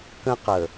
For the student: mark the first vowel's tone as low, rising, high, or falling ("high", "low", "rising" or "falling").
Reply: high